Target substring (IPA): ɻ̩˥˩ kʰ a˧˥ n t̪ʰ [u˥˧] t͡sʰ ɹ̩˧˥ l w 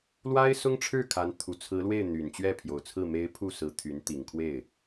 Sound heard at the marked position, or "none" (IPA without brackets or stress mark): u˨˩